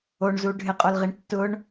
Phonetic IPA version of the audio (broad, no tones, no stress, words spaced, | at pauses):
oɳzu ɖʱɪqʼolʁiɳ tːʊɳ